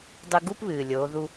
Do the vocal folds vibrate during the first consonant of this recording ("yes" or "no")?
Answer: yes